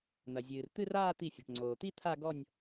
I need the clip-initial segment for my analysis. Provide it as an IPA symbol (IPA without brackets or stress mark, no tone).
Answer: n̪